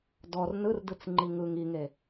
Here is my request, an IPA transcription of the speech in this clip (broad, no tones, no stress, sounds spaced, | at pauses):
d ɔ r n ɯ r d ɯ t͡s ŋ͡ǃ i ŋ ɯ ŋ i ŋ e